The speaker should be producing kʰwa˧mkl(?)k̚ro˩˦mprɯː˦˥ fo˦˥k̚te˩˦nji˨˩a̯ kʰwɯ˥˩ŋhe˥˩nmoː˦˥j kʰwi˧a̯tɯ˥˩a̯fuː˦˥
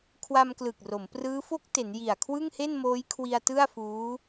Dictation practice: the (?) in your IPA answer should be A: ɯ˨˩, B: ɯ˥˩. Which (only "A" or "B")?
A